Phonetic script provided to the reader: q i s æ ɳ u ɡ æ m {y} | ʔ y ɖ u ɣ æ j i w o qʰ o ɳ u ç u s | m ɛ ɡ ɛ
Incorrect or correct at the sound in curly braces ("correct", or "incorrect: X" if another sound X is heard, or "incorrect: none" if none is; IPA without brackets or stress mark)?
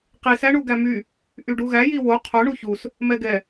correct